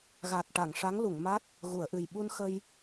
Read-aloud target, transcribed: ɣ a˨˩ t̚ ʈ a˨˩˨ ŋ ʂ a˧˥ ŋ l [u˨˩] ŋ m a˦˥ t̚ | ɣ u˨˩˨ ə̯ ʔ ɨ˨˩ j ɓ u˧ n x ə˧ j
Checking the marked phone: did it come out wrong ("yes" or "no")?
yes